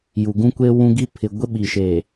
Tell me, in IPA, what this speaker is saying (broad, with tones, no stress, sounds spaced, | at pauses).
j u˨ ɡ ũ˦ kʷ e˦ w ũ˦ ɡ i˦ pʰ ɪ˨ ɡʷ e˦ ɓ i˨ ʃ e˨